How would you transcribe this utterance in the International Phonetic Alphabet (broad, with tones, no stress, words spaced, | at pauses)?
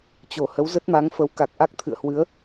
t͡ɕo˧˩hə˨˦w zə˦˥t̚ma˨˦ŋfə˨˦wka˨˩k̚ ʔa˦˥k̚t̪ʰɨ̰˧˨ə̯ hwɨ˨˦ə̯